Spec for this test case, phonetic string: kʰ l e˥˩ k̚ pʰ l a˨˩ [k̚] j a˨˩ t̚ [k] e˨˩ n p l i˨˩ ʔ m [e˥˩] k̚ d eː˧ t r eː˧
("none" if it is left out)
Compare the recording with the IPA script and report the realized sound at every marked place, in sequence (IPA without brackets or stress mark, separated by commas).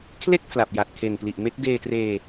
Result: p̚, kʰ, e˦˥